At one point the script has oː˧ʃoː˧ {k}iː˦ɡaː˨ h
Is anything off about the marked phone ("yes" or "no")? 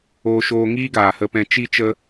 yes